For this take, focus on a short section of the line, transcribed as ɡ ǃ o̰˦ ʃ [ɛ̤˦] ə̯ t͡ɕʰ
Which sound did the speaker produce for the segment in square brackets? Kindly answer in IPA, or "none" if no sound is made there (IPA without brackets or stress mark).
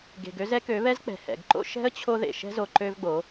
ɛ̤˦